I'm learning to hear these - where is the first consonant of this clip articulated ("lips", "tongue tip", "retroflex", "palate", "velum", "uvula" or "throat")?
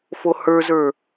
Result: lips